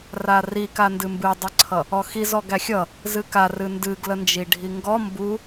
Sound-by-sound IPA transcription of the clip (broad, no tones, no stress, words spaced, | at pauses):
rarika ndɨmbɨdˤɨǀʰʌ | ɔxiz ɔɡæxʲʌ | zɨkar ɨndɨɡlə nd͡ʒiɖʱiŋɡɔ mbu